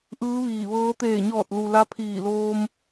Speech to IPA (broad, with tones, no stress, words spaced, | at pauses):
ʔɯː˧˥ʋiː˧˩ ʋɤː˧˥ t̪eː˧˩ɲɔː˧˩t̚lu˩ la˧˥pʰiː˧˩ loː˧m